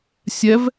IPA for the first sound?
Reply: sʲ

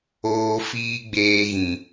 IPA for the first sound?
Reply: oː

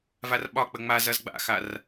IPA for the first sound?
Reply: v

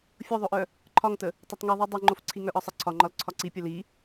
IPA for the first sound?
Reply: fʲ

